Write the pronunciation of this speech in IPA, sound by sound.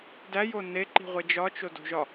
d æ j o n e ǃ i̤ ʁʷ e d͡ʒ ɒ t͡ʃ o d o̤ ʒ ɒ

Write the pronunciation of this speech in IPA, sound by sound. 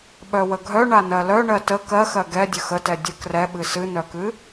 ɓ œ w ə ɡʱ œ ɳ a n ɜ l œ ɳ ɜ t ə k ɜ x ɜ ɡ ɛ dʲ ə x ə t ɛ dʲ ə k r ɛ ɓ ɨ s ɨ n œ k ɨ

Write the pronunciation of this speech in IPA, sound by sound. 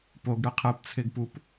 p o ɡ ɽ ɨ qʰ ɨ p t͡sʰ e ɡ p u p

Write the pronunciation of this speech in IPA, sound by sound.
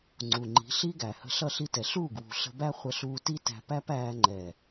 ŋ͡ǀ u˨ ŋ͡ǃ i̤˨˦ ɬ i˦ ɡ æ˨ h ə̤˧ ɬ ʌ˦˨ ɬ i˦ t ɛ˨ ɬ uː˦˨ ɡ w ṳ˨ ɬ ə̤˧ b æ˦ χʷ ə˧ ɬ uː˧ t i˦ t æ̤˧ p æ˦ p æː˧ ŋ͡ǃ ɛ˨

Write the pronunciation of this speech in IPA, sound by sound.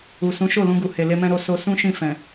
u˨ s ũ˨˦ ʃ o˦˨ l ũ˧ ɡ u˨ h e˨ l e˧ m ɛ̃˧ ɾ o˧ s o˧ s ũ˦ ʃ ĩ˦˨ f ɛ̃˨

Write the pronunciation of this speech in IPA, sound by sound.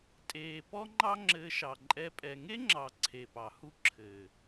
tʼ eː˨ p ɔ˦ ŋ͡ǃ ɑ˦ ŋ͡ǁ ɘː˧ ʃ ɑ˨ ǃʼ ɛ˧ pʼ ɛ˨ ŋ e˦ ŋ͡ǁ ɑ˨ ǀʰ e˨ p ɑ˨ h u˦ ǁʰ ɘː˨

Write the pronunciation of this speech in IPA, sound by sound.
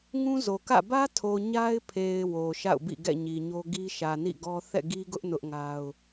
ŋ ũ˦ z o˨ k ä̰˦˨ b ä˦ tʰ o˨ ɲ a˦ ɪ̯ pʰ e˨ ɪ̯ w o˨ ʃ a̰˦˨ ʊ̯ b ḭ˦˨ ɡ ɛ̰˦˨ ɲ i˨ ɲ o˦ ɡ i˦ ʃ ä˨ n ḭ˦˨ ɡ ɔ˦ θ ɛ̰˦˨ ɡ i˦ ɡ ʊ˦ ʔ n ʊ˦ ʔ ŋ a˦ ʊ̯

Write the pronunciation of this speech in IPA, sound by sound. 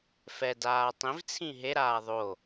f ɛ d aː tˤ ĩ v t͡sʰ ĩ ɦ e ɾ aː ðˤ o

